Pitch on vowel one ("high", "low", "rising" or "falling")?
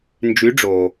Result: rising